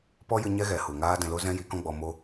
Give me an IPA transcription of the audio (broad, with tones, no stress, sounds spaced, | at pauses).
p ɔ˦ j ɨ˧ ɲ ɛ˦ ɣ ɛ˨ h u˨ ŋ aː˦ d ɛ̃˧ l o˦ z ɛ̃˦ j i˨˦ k ɔ̃˦ ɡ͡b ɔ˧ m o˦